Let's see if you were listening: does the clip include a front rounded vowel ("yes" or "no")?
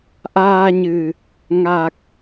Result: no